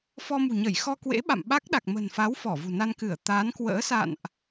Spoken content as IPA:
f ɔ˧ m ṳ˨˩ ɲ ə˧˩ j x ɔ˧ k w ḛ˧˥ ɓ a̰˧˨ m ɓ a˦˥ k̚ ɗ a˨˩ k̚ m ə̤˨˩ n f a˨˦ w f ɔ˧˩ v ṳ˨˩ n a˧ n k ɨ˧˩ ə̯ t̪ aː˨˦ n k w ə̰ː˧˥ s a̰˧˨ n ʔ

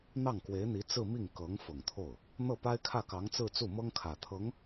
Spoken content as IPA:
n̪ ɑ˥˩ ŋ k w e˧˥ ɪ̯ n̪ i˧˥ t͡s ɹ̩˥˧ m i˥˩ ŋ k ɤ˧˥ ŋ f ʊ˨˩ ŋ t̪ʰ o˥˩ ʊ̯ | n̪ ɤ˥˩ p a˥ ɪ̯ kʰ ä˥˩ k ɑ˧˥ ŋ t͡s ɹ̩˥˧ t͡s u˥˩ m ɤ˥ ŋ kʰ ä˨˩ t̪ʰ ɤ˧˥ ŋ

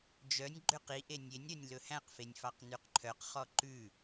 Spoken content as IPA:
d͡ʒ œ nʲ ɡ͡ǃ ø q i ʔ e nʲ e nʲ ɾ œ nʲ l ɵ h æ̃ q f e nʲ f ɑ q n ʉ q ǃʰ œ q χ ɔ ǃ ʉ

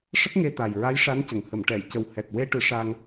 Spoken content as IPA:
ʂ ə˦˥ k̚ ŋ e˧ t̪ a˨˩ j ɹ a˧˥ j ʂ a˧˥ n c ə˨˩ ŋ h ə˨˩˨ m ʈ ɛ˨˩˨ j c ə˨˩ w h ɛ˨˩ t̚ w e˧ ʈ ɨ˨˩˦ ʂ a˧ ŋ

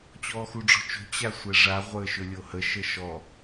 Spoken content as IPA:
t͡ɕ ɔː x u ɖ͡ʐ ɔ̤ t͡ʃ o̤ t͡ɕ a sʷ ɛ ʐ a ʁʷ əː ʃ ɵ lʲ o h ə ʃ ə ʃ ɔ

